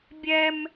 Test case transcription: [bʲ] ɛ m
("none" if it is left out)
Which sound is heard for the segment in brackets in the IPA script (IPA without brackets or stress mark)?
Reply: bʲ